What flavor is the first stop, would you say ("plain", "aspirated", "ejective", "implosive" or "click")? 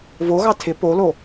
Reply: aspirated